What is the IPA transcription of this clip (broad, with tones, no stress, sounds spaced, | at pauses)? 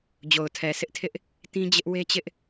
d͡ʑ o˨ ʊ̯ tʰ ɛ˨ sʰ ɪ˦ ʔ tʰ ɪ˦ ʔ | t ĩ˦ d͡ʑ ɪ˦ ʔ w e˦ t͡ɕ ɪ˦ ʔ